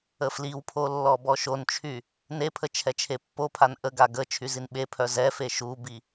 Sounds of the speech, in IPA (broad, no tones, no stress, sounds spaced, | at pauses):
ə f l i w pʰ o lː ɔ b ɔ ʃ o n t͡ʃʰ y | n e pʰ ə t͡ʃʰ ɛ t͡ʃʰ e pː o pʰ a n ʔ ə ɡ a ɡ ə t͡ʃʰ y z i n ɓ e pʰ œ z ɛ f e ʃ u b i